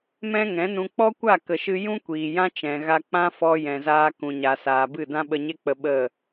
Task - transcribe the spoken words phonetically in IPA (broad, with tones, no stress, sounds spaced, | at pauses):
m ɛ̃˦ ŋ ɛ̃˨˦ n ũ˧ k͡p ɔ˦ kʷ a˦˨ k ə˨ ʃ ɨ˧ j ũ˦ kʷ iː˨ j ã˦ t͡ʃ ɛ̃˨ ɣ a˧ k͡p ã˦ f ɔ˧ j ɛ̃˨ z aː˧ k ũ˨ ɲ a˨ s aː˨ b ɨ˦˨ d ã˦ ɓ ə˧ ɲ e˦ k͡p ə˧ ɓ ə˦˨